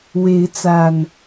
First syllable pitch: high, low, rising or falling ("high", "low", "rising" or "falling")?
rising